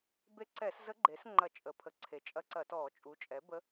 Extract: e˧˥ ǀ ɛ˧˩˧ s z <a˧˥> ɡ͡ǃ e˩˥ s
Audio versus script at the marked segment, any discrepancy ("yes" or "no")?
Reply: yes